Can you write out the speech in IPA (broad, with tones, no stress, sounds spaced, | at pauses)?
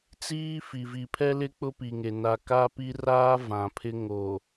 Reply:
t͡s iː˦ f i˨ v i˨ pʰ ɛ˦ l ɪ˦ k͡p ʊ˦ p i˨ ŋ e˨ n a˨ k a˦ p i˦ r aː˦ v ã˨ pʰ ɪ˦ ŋ o˨